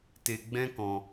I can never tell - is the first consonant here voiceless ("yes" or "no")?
yes